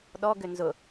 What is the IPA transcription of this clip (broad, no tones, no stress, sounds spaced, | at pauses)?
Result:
ɗ ɔ ɡ ʏ n z ʊ